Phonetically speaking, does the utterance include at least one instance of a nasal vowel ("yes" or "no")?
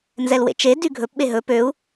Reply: no